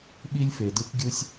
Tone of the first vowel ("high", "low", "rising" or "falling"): high